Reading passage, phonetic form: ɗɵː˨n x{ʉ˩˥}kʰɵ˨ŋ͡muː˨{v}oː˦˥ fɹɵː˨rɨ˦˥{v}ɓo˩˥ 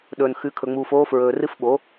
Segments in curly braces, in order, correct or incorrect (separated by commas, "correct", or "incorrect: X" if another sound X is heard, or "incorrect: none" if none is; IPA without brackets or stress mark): correct, incorrect: f, incorrect: f